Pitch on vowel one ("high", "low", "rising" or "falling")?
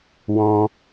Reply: high